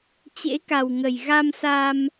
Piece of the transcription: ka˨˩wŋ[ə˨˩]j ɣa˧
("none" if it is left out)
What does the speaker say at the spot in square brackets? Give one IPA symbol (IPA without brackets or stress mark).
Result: ə˨˩